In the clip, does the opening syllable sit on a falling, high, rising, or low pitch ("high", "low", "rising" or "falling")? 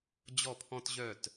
falling